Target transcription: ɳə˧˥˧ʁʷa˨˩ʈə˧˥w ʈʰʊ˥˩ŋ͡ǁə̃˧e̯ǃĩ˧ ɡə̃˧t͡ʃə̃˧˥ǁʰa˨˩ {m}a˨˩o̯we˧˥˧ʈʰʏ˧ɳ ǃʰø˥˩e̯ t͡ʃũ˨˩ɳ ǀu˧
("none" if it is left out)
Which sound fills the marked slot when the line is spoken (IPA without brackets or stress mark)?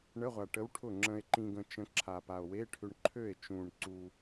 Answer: p